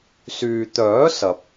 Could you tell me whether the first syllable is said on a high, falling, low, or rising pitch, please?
low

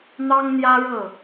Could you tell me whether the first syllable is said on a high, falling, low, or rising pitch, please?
high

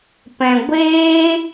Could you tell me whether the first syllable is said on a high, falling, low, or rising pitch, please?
low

